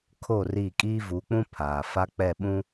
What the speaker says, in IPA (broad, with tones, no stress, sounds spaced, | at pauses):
kʰ o˦˨ r i˦˨ kʼ iː˦ v u˨˦ k͡p ũ˦ pʰ aː˨ f a˦ k͡p ɛ˦˨ ɓ ũ˦